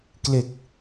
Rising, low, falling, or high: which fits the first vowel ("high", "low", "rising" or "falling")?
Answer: low